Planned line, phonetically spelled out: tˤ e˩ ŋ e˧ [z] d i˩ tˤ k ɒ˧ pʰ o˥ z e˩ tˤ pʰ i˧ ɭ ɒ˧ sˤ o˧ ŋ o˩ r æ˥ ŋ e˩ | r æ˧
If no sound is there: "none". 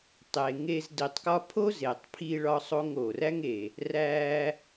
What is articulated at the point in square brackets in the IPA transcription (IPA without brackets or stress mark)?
z